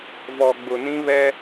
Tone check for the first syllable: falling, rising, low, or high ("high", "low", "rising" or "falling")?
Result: low